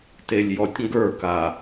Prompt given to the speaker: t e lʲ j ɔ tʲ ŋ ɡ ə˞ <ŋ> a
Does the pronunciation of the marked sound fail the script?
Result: yes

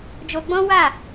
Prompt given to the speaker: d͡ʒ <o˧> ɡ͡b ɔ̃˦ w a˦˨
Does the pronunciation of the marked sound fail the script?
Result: no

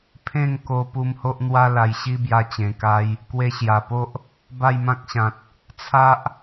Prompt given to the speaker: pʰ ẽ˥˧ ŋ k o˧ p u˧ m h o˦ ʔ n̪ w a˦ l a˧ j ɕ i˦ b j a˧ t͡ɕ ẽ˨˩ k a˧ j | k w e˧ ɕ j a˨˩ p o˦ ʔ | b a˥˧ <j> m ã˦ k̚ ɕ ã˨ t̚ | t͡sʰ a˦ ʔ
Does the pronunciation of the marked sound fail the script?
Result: no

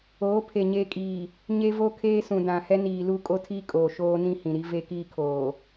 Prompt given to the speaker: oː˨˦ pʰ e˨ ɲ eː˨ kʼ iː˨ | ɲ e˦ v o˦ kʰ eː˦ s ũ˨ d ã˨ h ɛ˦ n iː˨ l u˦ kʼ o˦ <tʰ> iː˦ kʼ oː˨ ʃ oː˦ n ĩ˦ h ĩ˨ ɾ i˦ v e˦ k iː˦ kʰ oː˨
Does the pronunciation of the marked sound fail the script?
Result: no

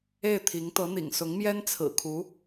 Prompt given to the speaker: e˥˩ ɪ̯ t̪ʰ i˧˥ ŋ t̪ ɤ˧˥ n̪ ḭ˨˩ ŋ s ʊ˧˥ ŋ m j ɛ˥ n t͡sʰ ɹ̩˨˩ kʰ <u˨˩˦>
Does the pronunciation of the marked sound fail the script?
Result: yes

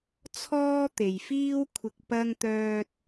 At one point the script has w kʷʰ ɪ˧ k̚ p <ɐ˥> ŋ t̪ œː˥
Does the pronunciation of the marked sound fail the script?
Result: no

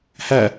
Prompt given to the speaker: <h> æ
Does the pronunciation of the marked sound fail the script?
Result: no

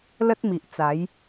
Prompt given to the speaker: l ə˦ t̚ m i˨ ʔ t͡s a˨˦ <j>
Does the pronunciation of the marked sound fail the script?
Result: no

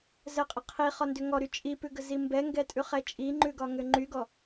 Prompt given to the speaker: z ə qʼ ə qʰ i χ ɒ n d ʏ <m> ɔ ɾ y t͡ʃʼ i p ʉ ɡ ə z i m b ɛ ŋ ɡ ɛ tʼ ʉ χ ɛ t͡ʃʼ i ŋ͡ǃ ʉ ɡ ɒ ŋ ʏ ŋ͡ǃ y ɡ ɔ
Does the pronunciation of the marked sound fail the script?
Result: yes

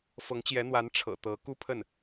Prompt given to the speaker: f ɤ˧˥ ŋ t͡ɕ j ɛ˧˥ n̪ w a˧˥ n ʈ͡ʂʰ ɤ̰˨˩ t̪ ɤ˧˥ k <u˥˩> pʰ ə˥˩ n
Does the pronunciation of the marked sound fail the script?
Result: yes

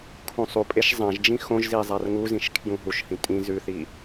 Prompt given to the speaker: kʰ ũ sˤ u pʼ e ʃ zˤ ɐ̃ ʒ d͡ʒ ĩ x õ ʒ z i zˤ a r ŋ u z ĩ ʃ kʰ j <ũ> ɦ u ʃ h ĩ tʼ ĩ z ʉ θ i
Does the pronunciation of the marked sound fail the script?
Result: no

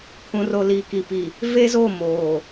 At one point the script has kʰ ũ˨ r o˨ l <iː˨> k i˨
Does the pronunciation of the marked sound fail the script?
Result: no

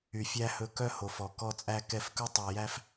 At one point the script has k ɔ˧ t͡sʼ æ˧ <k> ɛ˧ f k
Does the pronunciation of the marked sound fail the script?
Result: no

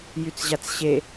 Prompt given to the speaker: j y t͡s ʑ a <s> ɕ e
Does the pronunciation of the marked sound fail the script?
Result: yes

